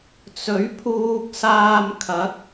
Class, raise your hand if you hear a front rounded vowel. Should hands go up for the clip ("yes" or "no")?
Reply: no